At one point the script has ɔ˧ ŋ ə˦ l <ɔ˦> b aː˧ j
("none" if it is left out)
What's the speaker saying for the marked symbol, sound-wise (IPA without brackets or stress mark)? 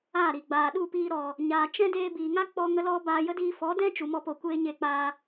ɔ˦